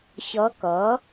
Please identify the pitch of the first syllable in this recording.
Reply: rising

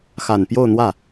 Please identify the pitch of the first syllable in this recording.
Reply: low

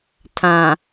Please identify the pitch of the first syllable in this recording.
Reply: low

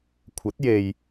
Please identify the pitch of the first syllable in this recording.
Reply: rising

